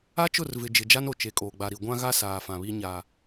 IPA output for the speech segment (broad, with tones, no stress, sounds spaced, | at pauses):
a˦ t͡ʃ ʊ˦˨ r v ɪ˨ d͡ʒ ɪ˨ d͡ʒ a˦ n o˨ t͡ʃ e˨ kʼ oː˨ ɡ͡b a˨ ɾ i˨ ɡʷ ã˦ ɣ a˦ s aː˨ f ã˨ β i˦ ɲ a˨